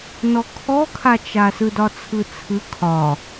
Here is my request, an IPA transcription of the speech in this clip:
n ɔ kʰ ɔ kʰ a t͡ʃ a s ɯ d ɒ t͡sʰ ɯ t͡sʰ ɯ kʰ ɒ

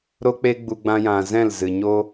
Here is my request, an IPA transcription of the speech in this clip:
ɾ o˦ k͡p e˦ ɡ͡b u˧ ɡ͡b ã˧ j ã˨ z ɛ̃˦˨ l z ɨ˨ ɲ o˦

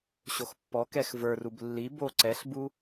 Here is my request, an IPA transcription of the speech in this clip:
ɕ o x pː ɔ k ɛ x v ə˞ r u b lː i b o ǀ ɛ ɬ b u

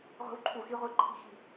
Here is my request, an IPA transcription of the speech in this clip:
ʁʷ e̤˦˥ w ǃʰ u˦˨ x i˦˥ ʁʷ i˦˥ ǃʰ i̤˦˨ x i̤˦˨

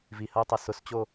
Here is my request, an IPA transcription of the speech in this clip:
v i h ɐ u̯ tˤ ɐ s ʊ s t͡ɕ o

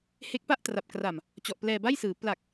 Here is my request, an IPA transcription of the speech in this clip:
h e˦˥ k̚ p a˥˩ ʔ t r a˨˩ p̚ k r a˨˩ m | t͡ɕ ɔ˨˩ ʔ p l ɛː˧ b a˥˩ j s ɯː˩˦ p l a˨˩ k̚

